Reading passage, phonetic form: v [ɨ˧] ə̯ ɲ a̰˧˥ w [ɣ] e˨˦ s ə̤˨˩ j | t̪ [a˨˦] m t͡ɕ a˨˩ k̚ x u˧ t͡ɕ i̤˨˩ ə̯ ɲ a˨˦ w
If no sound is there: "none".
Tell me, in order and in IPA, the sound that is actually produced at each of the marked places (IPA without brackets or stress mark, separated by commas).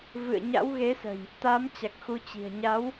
ɨ̰˧˨, ɣ, a˨˦